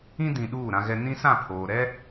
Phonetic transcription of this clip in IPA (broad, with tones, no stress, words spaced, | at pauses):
ĩ˦dĩ˨ ɗuː˦˨ɾã˦ɣɛ˦ nĩ˦sã˦˨pʰoː˨ɾɛ˦